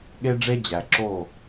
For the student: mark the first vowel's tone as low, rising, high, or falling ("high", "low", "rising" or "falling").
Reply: high